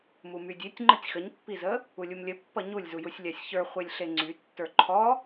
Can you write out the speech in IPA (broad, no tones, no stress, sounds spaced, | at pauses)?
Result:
m u m y dʲ e tʲ ŋ͡ǃ ə tʲ x ə ɲ pː i z ə | u lʲ u m lʲ ə pː ʌ ɲ u lʲ z u j u sʲ lʲ a sʲ ç ə˞ χʷ e lʲ ɬ e ŋ͡ǀ y tː ə˞ ǃʰ ɔ